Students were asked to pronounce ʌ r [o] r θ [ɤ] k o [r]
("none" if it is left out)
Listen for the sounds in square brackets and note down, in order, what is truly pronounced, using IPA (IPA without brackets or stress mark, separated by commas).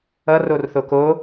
o, o, none